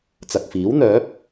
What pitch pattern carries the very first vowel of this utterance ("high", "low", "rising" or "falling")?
low